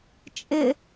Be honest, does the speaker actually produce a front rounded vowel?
no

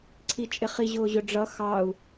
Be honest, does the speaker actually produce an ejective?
yes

